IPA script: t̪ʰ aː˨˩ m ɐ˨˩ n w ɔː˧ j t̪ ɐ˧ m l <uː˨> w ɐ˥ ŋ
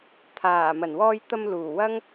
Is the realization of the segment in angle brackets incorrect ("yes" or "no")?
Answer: yes